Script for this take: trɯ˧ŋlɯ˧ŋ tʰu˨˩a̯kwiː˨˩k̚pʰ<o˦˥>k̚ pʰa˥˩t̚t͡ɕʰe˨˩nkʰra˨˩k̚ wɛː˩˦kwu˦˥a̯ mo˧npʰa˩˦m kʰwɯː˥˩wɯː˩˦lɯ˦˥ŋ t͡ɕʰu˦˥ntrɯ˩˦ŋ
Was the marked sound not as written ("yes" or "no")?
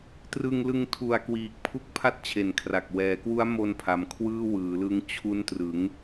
yes